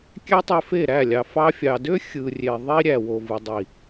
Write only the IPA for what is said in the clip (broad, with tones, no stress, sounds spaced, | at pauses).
kʲ æ˦ tˤ e˧ f e˦˨ ɾ æ˦˨ lʲ ɑ˨ f ɑ˧ fʲ ɑ˨ d ø˦ xʲ ɯ˨ rʲ e˨ ðˤ i˦ ɾʲ æ˨ w o˨ v ɯ˨ dˤ i˨